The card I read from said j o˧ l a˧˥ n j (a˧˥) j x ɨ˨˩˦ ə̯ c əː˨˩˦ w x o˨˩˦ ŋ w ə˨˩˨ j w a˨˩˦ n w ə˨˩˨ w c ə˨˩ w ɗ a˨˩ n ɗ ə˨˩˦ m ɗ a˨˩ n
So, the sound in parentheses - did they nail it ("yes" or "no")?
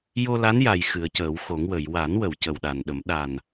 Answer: no